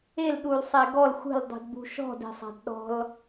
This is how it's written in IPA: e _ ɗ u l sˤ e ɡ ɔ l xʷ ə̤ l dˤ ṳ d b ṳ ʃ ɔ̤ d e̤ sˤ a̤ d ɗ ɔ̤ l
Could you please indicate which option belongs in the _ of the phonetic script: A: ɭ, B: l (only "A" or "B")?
B